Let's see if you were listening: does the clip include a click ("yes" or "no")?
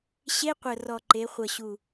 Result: yes